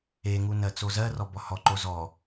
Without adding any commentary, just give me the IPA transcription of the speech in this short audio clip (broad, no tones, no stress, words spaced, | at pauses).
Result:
eŋu nɜt͡sozɜrɔ bɔhɔǃo zɔ